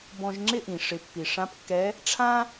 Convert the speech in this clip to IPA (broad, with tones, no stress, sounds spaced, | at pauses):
b ɔ̃˧ ʒ ŋ͡ǁ ɪ˥ ʔ ĩ˩ ʂ ɪ˩˧ pː i˩ ʂ ã˧˥ p kː ɛ˧˥ | ʈ͡ʂʰ ã˥